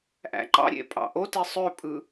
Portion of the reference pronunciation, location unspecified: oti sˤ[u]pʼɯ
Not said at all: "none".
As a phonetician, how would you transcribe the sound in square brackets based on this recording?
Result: ø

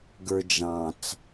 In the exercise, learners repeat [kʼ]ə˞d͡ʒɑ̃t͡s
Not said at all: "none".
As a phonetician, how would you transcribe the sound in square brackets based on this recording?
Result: ɡ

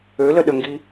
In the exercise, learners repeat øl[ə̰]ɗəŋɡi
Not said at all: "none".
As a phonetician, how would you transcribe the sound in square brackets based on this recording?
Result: ə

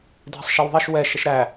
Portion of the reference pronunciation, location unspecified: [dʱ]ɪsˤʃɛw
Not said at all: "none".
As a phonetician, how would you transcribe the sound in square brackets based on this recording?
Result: dʱ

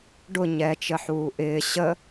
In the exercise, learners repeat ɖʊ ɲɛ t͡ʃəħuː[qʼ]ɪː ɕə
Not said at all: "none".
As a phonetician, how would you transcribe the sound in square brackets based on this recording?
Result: ʔ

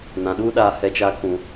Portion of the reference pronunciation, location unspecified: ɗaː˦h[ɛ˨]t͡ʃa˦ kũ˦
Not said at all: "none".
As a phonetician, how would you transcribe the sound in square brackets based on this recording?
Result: ɛ˦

